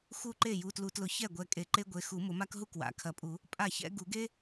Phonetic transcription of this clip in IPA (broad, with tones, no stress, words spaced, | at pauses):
xu˥˩ǃe˥˩ ju˩˧˩tlu˨˩˦tlʊ˨˩˦ çɛ˥˩ɡʷɛ˨˦ kʼe˨˩˦ǃe˥ɡʷe˩˧˩ xu˨˩˦ mʊ˨˩˦ma˥k ɦu˥kwa̰˩˧˩kʰɐ˨˩˦pʼu˨˩˦ | pʼa˥˩çɛ̰˥ ɡu˨˩˦ɡe˥